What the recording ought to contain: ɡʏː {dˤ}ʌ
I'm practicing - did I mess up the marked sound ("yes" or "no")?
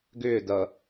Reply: yes